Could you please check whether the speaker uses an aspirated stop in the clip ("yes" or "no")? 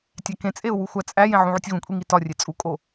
no